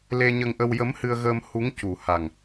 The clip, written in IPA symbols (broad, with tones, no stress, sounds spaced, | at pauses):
l e˧ ɲ ə˧ ŋ ʔ ə˧ w j ə˧˥ m h ɨ˧ ə̯ ɣ əː˧ m h u˧˥ ŋ c u˨˩ h a˨˩ ŋ